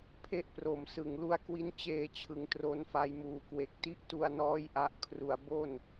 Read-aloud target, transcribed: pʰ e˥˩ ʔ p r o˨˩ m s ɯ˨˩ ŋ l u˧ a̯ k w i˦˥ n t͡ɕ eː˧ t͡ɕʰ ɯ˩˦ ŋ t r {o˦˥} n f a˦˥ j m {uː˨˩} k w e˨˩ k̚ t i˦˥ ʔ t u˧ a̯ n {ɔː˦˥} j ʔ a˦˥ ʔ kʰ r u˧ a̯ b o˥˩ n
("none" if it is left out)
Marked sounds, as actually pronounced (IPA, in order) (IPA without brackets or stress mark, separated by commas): o˦˥, uː˨˩, ɔː˦˥